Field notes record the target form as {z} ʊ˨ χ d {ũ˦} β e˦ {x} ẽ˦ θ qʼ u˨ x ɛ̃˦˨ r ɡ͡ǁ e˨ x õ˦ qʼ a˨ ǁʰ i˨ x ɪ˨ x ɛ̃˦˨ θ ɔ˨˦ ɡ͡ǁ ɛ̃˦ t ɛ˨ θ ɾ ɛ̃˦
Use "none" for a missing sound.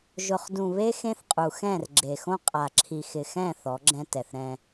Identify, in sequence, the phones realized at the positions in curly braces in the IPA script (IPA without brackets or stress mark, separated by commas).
ʒ, ũ˨, x